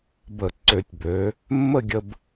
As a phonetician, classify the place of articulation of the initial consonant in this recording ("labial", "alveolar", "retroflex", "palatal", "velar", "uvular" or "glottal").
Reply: labial